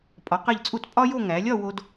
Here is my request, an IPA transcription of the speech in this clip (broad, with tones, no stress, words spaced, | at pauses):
pʼɒ˩˧qe˧˩ʎt͡sʼu˧˩t pʼɒ˥jo˥˧ŋæ˩˧ lʲɒ˥˧wo˧d